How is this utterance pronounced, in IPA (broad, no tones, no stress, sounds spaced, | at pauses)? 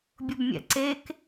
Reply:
bʲ ʊ b mʲ ɛ̰ ǀ e k